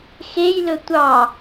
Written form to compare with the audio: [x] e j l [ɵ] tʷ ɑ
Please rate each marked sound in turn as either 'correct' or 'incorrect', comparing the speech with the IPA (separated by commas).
correct, correct